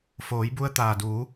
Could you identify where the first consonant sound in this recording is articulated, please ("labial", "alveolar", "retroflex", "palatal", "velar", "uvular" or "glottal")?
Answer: labial